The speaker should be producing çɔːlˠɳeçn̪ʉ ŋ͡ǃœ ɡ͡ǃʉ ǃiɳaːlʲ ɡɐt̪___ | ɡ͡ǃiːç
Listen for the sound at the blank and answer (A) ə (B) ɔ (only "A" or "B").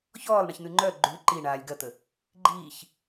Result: A